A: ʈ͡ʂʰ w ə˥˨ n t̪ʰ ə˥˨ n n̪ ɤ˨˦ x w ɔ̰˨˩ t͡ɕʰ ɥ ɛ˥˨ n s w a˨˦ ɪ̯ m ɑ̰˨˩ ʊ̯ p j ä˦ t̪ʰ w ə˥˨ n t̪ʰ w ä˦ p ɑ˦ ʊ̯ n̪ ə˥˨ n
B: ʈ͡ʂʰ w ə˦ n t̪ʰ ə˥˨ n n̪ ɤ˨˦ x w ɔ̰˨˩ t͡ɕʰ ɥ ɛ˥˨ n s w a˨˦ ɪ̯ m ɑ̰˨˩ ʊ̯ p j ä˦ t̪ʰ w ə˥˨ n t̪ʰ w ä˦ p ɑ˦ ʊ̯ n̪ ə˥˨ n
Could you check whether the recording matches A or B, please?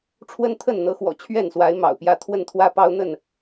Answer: B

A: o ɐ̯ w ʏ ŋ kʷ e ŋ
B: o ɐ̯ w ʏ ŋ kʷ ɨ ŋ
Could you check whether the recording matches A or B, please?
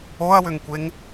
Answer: A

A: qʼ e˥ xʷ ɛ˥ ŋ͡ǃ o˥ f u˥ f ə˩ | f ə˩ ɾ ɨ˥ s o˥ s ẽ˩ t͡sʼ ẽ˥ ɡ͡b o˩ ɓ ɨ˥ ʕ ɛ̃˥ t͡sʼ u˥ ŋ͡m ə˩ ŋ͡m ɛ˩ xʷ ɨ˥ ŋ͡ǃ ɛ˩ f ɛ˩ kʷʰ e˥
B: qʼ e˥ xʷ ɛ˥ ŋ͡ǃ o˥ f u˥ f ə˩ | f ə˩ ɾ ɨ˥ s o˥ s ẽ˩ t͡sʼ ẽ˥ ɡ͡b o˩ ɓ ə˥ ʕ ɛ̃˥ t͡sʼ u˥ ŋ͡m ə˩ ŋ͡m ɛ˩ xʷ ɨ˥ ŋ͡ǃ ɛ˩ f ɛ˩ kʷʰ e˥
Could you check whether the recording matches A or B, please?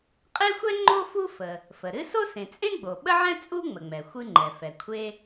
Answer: B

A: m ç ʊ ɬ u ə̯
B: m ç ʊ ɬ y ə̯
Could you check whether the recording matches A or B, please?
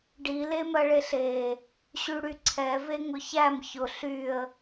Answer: B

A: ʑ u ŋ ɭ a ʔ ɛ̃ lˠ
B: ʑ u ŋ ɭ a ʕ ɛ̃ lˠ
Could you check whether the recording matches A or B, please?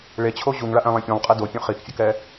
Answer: A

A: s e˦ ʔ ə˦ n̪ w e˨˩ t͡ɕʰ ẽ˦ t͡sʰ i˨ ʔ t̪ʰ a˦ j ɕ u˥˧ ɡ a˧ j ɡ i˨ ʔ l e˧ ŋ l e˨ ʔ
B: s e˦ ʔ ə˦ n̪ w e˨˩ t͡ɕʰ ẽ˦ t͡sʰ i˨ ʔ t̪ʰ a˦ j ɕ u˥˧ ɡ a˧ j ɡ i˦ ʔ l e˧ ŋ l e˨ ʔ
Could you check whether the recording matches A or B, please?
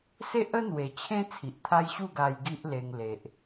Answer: B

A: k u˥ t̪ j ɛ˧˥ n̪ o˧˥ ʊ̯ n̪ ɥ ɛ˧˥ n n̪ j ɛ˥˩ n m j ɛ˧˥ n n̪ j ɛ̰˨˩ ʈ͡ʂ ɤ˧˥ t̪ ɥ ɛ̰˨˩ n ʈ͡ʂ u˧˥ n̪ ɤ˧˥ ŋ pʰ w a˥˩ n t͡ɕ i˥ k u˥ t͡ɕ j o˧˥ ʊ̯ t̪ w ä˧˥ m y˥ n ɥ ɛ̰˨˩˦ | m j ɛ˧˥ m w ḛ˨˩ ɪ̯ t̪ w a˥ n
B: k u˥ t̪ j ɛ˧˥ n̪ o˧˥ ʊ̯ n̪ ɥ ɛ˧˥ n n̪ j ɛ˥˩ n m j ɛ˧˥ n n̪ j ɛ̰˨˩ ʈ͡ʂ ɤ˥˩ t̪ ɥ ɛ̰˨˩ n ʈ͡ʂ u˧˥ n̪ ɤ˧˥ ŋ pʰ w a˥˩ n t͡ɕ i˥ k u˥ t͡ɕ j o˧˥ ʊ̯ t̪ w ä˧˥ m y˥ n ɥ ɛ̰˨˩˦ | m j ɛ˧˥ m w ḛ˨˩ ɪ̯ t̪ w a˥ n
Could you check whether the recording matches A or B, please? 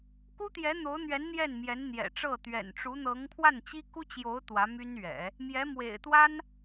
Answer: B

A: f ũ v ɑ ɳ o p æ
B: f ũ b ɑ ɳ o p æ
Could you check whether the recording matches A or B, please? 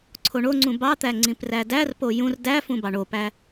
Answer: B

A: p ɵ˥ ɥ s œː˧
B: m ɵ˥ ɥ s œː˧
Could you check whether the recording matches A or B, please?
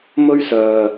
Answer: B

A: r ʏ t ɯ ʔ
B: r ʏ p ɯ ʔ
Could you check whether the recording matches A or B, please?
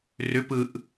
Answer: B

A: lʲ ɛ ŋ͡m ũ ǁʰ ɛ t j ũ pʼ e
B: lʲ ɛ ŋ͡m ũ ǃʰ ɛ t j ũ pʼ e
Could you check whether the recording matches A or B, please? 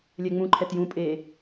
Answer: B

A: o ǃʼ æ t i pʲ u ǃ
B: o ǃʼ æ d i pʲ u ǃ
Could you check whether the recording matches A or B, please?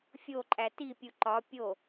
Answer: A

